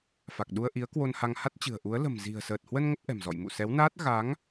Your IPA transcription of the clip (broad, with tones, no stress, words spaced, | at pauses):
fa˨˩k̚ɗu˧ə̯ ʔi˨˦ə̯kwo˧nha˧ŋ ha˦˥t̚t͡ɕɨ̤˨˩ə̯ʔu˨˦ə̯ lə̤˨˩mzi̤˨˩ə̯səː˨˩t̚hwə˧n ŋə˦˥p̚ʔɛ̤˨˩mzɔ̰˧˨j mṵ˧˨sɛ˨˦wnaː˦˥t̚ ɣa˨˦ŋ